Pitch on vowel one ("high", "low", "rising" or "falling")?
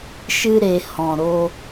high